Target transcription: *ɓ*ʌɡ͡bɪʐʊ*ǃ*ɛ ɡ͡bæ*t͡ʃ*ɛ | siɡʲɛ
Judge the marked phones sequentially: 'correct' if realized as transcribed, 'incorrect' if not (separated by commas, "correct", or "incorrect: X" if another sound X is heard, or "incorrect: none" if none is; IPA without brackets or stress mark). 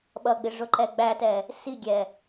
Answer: correct, correct, incorrect: t